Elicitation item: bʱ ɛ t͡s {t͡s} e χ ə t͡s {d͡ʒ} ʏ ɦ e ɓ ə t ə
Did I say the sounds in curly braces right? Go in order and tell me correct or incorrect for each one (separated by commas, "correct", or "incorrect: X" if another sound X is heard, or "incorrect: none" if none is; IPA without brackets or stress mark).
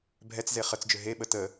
incorrect: z, correct